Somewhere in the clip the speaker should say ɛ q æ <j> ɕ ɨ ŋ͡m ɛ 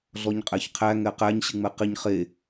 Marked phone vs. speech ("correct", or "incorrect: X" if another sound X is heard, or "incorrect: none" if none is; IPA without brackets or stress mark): incorrect: ɲ